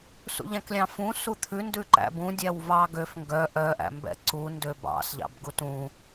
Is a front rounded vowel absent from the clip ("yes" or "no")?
no